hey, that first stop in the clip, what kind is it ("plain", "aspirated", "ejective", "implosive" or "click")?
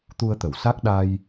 plain